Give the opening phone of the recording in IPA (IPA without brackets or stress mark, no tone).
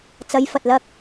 t͡s